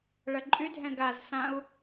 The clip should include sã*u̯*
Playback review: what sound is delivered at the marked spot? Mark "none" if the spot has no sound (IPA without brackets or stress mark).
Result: u̯